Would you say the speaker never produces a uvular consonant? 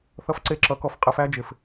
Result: no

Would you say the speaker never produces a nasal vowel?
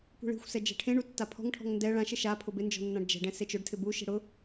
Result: no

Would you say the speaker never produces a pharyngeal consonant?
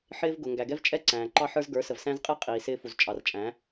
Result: no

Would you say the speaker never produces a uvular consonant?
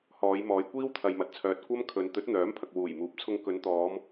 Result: yes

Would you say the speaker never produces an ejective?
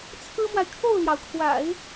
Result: yes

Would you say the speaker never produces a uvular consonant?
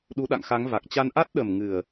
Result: yes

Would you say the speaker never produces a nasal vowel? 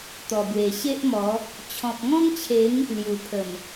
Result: no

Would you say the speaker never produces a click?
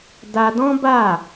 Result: yes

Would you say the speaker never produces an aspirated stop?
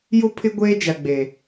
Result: no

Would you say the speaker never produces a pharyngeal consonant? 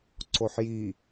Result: no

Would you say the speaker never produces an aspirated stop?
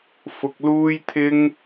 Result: no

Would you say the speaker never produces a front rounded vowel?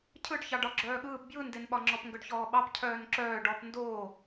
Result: no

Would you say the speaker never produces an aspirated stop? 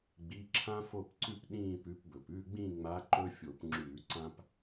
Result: no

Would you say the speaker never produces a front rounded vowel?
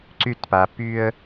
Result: no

